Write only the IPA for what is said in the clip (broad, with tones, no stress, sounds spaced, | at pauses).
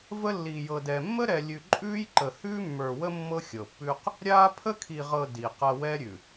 v ə˦ lː i˨ j ɤ˨ d ɛ˨ mː ə˦ ɾ ɛ˨ lʲ ʉ˨ ǃʼ ʉː˦ j ǃ ə˨ h ʉː˦ mː ə˞˨ w ə˦ mː ɤ˦ xʲ ɤ˨ pː ʉː˦ q | ɾʲ aː˦ pʰ ə˦ kʰ i˨ ʁ ɤ˨ d i˨ q ɐ˦ w ɛ˦ ɾʲ ʉ˨